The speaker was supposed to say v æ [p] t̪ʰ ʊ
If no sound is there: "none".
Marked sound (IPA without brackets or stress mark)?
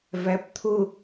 p